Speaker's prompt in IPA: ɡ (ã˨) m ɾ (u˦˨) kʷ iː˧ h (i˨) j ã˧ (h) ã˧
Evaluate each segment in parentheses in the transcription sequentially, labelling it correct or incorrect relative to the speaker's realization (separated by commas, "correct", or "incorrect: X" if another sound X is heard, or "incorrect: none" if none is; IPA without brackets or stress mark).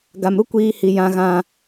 incorrect: a˨, incorrect: u˦, correct, incorrect: ɣ